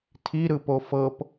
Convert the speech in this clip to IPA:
tʰ i ɾ ɯ p o f ɤ p

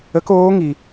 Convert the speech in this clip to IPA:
ə˧˥ k oː˧˥ ŋ i˩

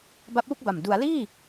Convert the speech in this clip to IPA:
b a˦˥ p̚ w u˥˩ k̚ b a˨˩ m d u˩˦ a̯ l iː˥˩

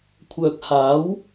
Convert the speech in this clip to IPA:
kʷʰ œː˨ k̚ h aː˨˥ w

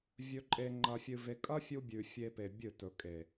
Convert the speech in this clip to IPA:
vʲ ɵ˧ ǃʼ e˧ ŋ͡ǃ ɐ˧ fʲ ɨ˧ v e˧ kʼ ɐ˦ fʲ u˧ bʲ ʉ˨ fʲ e˦ p e˧ bʲ ɨ˦˨ t ɵ˨ kʼ e˨

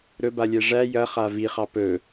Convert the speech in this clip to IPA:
ɾ ɵ b a lʲ ɛ ʐ æ j ɐ χ a v i χ ɑ p ɵ

